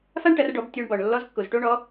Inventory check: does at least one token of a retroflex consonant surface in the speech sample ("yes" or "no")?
yes